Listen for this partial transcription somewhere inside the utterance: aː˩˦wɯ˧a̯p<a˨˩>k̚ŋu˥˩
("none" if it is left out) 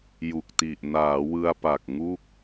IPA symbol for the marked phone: a˨˩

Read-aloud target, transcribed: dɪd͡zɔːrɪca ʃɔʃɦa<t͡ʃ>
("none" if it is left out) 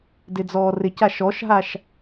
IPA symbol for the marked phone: ʃ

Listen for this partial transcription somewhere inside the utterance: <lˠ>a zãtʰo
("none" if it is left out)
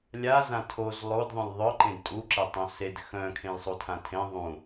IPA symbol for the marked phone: lʲ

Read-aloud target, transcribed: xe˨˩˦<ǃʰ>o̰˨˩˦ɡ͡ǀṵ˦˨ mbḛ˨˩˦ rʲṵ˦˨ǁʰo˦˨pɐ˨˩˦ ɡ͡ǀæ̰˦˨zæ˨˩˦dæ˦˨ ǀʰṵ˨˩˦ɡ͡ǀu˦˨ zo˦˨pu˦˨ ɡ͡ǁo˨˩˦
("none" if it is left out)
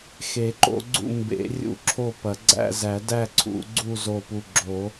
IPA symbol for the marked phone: ǃ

